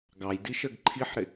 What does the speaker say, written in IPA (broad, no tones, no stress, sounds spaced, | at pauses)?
ɡ ɑ j d i ʃ ə ɡ ǃʰ i ħ ɾ ɪ